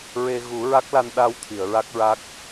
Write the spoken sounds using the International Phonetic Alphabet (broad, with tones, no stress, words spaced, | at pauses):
ɹe˧ ɣu˨˩˦ɹa˦˥k̚la˧n ɗa˧w t̪ʰi˨˩˨ə̯ɹa˦˥k̚ɹa˦˥k̚